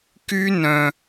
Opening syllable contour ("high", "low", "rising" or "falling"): high